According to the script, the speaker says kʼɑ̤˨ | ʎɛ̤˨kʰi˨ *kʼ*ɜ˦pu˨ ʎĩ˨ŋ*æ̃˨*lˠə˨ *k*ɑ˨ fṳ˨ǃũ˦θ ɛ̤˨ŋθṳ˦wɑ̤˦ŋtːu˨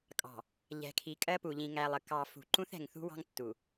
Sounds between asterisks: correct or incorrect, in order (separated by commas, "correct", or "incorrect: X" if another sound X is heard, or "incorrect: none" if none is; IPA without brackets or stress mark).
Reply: correct, incorrect: æ˨, correct